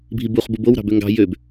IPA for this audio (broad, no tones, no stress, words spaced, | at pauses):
bʱibuχ bubow ɾɑ̤bøŋɡɑ̤ jøb